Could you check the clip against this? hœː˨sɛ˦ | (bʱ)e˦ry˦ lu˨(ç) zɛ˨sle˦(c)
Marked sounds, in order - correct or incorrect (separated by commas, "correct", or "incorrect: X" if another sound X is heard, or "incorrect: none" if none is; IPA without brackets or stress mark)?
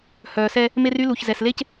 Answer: incorrect: m, correct, correct